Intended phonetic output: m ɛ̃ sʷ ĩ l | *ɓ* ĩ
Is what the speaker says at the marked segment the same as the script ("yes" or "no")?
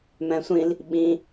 yes